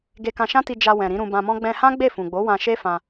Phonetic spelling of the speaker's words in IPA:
ɡ e˧ k ã˧ ʃ ã˦ t i˧ d͡ʒ a˧ w ɛ̃˨ ɾ ĩ˨˦ ɾ ũ˧ b ã˧ m ɔ̃˦ ɡ͡b ɛ̃˧ h ã˦ ɡ͡b e˦˨ f ũ˨ ɡ͡b o˨˦ w ã˧ ʃ e˦ f ã˧

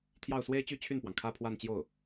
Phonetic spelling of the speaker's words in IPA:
t̪ʰ j ɑ˥˩ ʊ̯ s w e˥ ɪ̯ t͡ɕ y˥˧ t͡ɕʰ y˥˩ n p w ɑ˩ ŋ kʰ ä˥˧ pʰ w a˥˧ n t͡ɕ j o˥˩ ʊ̯

